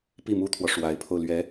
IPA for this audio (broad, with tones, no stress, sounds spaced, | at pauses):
p i˥˩ m u˥ t̪ʰ w ɔ˨ ʂ w a˧˥ ɪ̯ pʰ o˧ ʊ̯ l ɥ ɛ˧˥